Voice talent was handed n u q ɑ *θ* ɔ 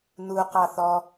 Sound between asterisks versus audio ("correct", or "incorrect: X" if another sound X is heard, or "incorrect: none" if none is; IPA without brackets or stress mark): correct